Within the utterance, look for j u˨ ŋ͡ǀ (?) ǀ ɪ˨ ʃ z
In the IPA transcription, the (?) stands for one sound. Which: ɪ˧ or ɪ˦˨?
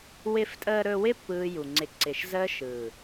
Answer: ɪ˧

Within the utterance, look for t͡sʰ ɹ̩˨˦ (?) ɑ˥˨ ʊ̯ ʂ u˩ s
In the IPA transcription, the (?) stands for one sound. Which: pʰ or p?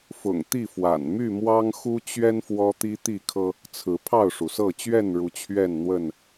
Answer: pʰ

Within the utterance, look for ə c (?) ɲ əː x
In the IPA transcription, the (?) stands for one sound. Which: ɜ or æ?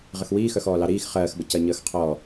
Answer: ɜ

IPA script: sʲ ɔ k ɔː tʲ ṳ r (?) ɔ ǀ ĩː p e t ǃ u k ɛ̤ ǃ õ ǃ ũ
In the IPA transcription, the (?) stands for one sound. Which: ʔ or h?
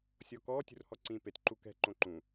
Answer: h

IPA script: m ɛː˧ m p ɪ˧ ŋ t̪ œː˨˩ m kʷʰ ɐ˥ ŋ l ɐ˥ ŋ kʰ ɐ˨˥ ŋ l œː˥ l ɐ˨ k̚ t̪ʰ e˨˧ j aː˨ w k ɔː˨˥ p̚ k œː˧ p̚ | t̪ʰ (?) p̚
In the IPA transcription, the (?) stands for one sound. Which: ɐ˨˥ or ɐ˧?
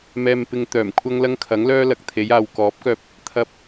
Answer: ɐ˨˥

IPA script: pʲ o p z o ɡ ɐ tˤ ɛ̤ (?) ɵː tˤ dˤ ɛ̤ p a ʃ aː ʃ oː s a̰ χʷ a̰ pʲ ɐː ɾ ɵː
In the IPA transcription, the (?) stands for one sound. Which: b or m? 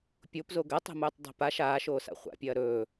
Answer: m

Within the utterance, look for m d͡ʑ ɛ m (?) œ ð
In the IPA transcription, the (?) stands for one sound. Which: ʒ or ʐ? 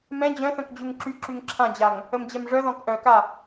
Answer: ʐ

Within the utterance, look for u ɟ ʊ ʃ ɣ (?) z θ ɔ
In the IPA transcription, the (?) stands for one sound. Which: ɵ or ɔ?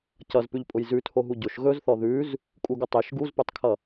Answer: ɵ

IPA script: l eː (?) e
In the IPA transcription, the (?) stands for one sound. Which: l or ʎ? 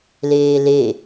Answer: l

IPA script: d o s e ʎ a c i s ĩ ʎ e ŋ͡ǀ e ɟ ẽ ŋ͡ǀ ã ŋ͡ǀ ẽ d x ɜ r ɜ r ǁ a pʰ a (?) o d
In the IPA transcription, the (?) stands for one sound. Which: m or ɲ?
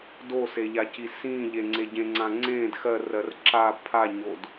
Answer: ɲ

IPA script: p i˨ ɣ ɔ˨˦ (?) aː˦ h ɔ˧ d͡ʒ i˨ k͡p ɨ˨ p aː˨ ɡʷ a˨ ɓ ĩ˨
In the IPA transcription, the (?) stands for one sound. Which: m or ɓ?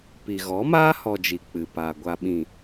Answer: m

